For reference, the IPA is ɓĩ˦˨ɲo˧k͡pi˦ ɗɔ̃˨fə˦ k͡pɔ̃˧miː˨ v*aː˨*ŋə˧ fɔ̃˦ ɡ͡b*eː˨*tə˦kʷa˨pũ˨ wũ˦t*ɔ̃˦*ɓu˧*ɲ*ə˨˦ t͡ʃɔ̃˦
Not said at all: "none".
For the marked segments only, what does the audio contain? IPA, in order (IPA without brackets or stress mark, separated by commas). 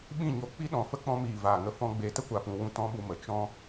aː˨, eː˨, ɔ̃˦, m